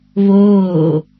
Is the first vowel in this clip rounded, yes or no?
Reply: yes